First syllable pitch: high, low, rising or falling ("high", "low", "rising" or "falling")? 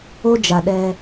high